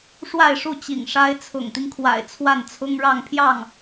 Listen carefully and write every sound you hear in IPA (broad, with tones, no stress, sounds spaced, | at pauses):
ʂ w a˥˧ ɪ̯ ʂ u˥˩ t͡ɕ ḭ˨˩ ŋ ʂ a˥ ɪ̯ t͡sʰ ʊ̰˨˩ ŋ t̪ i˦ ŋ kʰ w a̰˨˩ ɪ̯ t͡sʰ w a˥˩ n t͡sʰ ʊ˥ ŋ ɻ ɑ˥˧ ŋ pʰ j ɑ˥˩ ŋ